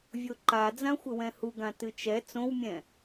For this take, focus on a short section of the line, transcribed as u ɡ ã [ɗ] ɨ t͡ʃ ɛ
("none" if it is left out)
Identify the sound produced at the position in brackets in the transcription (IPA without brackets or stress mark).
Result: t